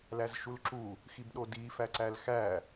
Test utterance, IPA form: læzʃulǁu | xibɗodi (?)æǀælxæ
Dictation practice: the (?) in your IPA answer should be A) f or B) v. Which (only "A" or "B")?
A